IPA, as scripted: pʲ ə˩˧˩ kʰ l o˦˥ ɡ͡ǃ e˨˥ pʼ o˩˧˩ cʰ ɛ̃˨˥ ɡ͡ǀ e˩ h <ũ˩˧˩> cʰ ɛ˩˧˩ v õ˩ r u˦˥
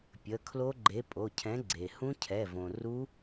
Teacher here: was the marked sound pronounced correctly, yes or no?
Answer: no